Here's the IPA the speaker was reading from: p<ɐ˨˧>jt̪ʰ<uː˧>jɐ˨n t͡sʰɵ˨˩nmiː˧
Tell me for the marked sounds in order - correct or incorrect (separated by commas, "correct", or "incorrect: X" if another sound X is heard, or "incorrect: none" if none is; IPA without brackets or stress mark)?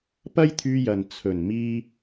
incorrect: ɐ˥, incorrect: yː˧